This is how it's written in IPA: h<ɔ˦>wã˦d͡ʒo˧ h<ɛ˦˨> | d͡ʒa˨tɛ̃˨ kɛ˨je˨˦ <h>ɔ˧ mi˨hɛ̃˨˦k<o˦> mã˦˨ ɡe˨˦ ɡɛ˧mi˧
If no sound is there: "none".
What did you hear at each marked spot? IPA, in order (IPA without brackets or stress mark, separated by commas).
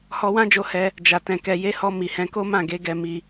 ɔ˧, ɛ˧, h, o˦